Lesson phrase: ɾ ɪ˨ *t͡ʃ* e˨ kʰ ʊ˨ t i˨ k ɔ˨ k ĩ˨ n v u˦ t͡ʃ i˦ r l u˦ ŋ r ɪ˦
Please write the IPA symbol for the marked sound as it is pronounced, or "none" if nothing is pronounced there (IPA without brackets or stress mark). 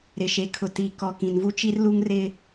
ʃ